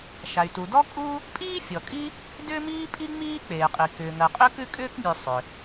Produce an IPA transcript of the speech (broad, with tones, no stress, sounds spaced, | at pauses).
ʃ a˩ y̯ t u˩ d ɔ˥ kʼ u˥ | pʼ iː˥ fʲ ɔ˩ kʼ i˥ | d ʏː˥ m iː˥ pʼ i˥ ŋ͡m iː˥ k͡p eː˩ qʼ i˩ k ʏː˩ ŋ ɜ˩ qʼ ʏ˥ k ʉ˥ kʼ ʏː˥ k mʲ ʉ˩ sˤ ʏ˩